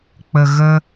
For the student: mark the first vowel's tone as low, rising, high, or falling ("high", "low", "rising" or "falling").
low